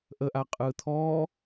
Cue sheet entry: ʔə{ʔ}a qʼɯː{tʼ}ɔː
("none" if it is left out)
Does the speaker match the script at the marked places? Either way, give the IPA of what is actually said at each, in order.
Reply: ʔ, t̪ʰ

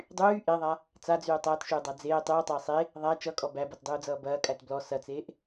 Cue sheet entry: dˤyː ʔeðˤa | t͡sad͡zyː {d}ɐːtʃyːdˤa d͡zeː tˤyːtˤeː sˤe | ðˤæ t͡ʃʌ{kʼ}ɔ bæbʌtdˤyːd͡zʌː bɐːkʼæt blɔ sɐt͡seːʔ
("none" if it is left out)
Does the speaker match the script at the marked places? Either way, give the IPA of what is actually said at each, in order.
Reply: tˤ, kʼ

